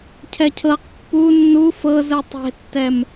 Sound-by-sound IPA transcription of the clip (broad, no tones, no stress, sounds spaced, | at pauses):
cʰ ɛ cʰ ɤ q pː u nː u f ɤ z ɯ tˤ e̤ tː ɛ m